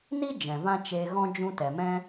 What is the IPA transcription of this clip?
n i˦ d͡ʒ ɛ̃˨ v ã˦ t͡ʃ eː˧ ɣ ɔ̃˦ d͡ʒ ũ˦ t ɛ˨ m ɛ̃˦

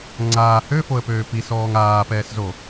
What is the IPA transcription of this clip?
ŋ͡ǀ aː h ø f o ə̯ p øː p i s ɔː ŋ aː p ɛː s z o

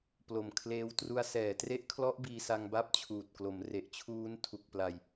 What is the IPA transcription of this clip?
p l o˨˩ m kʰ l eː˧ w t r u˧ a̯ s ɛː˩˦ t r e˦˥ ʔ kʰ l ɔ˦˥ ʔ b iː˧ s a˧ ŋ b a˥˩ p̚ t͡ɕʰ uː˨˩ t̚ k l o˩˦ m r e˨˩ ʔ t͡ɕʰ uː˦˥ n tʰ u˨˩ k̚ p l a˨˩ j

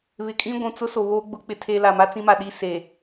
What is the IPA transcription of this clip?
β ɪ˨ kʼ ĩ˦ ɡʷ ũ˨ t͡s ʊ˦ s o˨ β oː˦ ɡ͡b ʊ˦˨ k͡p ɪ˦ tʰ e˦ l a˨ m a˦ t͡s ĩ˦ m a˨ ɗ i˦ s e˨

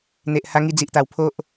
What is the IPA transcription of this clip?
n̪ e˨ ʔ h a˧ ŋ i˧ d͡z i˨ ʔ t̪ a˨˩ w pʰ o˦ ʔ

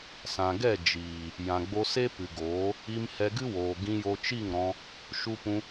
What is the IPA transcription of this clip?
s ã˨ ɡ ɛ˦˨ d͡ʒ iː˨ | j ã˨ ɡ͡b o˧ s e˦ p ɨ˨ ɡ oː˨˦ | i˧ m h ɛ˧ ɡ ɨ˦ w oː˨ ɡ ĩ˧ j o˧ t͡ʃ i˦˨ ŋ ɾ ɔ̃˧ | ʃ u˧ p ũ˧

